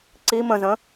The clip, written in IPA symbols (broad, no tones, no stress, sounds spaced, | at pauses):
ǀ i m ə̃ z ə̃